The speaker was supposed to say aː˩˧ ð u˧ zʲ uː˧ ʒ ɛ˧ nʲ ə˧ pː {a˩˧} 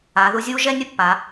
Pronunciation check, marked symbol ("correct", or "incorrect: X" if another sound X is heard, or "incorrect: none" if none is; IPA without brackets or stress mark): correct